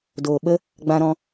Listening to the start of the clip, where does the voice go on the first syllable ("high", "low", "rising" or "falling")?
low